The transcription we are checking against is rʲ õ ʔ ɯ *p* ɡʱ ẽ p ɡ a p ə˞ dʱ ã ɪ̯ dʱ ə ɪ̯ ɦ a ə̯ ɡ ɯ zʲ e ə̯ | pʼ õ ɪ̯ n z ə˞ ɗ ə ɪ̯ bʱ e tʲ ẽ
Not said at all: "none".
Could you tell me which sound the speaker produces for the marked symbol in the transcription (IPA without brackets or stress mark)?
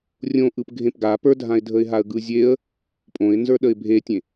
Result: p